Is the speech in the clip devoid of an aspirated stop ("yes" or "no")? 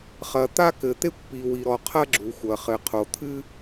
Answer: no